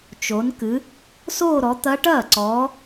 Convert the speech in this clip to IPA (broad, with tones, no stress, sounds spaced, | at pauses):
t͡ʃ o˨˦ n k ɨ˨˦ | s oː˥˧ ɾ ɔ˨˦ t̪ ɐ˦˥ ʈ ɐː˥˩ ǀ ɔː˨˦